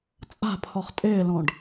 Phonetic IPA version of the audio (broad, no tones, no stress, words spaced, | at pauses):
t͡sʼa̤pʰɔχ tʼɪːlɔ̃ɖ